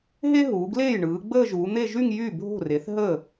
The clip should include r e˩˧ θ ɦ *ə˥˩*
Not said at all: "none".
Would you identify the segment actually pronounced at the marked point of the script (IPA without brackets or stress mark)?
ə˥˩